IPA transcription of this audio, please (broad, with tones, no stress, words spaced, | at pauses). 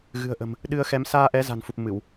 ɣɨ̤˨˩ə̯ʔə̤˨˩m | ɗɨ˧ə̯xɛ˨˦m saː˧ʔɛ˨˦za̤˨˩nfu˨˩p̚ mɨ˧˩˨w